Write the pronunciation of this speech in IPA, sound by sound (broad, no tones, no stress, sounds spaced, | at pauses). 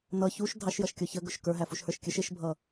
n ʌ ç u ʃ dʱ ɑ ʃ j ʌ ʃ kʲ ɔ ç ə ɡ ʊ ʃ k ə˞ ɦ æ f u ʃ h ə˞ ʃ kʲ ə ʃ ɪ ʃ bʱ ʌ